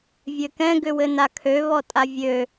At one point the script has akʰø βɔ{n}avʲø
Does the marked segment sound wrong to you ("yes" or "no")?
yes